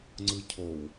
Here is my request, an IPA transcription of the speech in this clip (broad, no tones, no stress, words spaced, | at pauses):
ŋ͡ǀɯcʰow